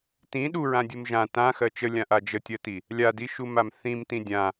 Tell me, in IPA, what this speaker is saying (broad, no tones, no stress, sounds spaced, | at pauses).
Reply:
t ĩ ɗ u ɹ ã dʲ u m ʒ ã t ã x ɜ t͡ʃ ə lʲ ã ʔ a d͡ʒ ə tʲ ɜ t i | lʲ a d i ʃ u m a m θ ĩ m t ĩ dʲ ã